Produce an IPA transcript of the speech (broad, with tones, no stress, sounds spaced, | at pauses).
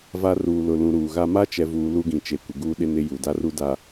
v a˦ r uː˨ l ʊ˨ l ũ˨ ɾ uː˨ ɣ a˦ m a˦ t͡ʃ ɛ˨ v uː˨ l u˦ ɡ ĩ˨ t͡ʃ e˨ kʷ ɪ˨ ɡ uː˦ ɗ ɪ˦ n ɪ˦ j u˨ d a˦ r u˦ d a˨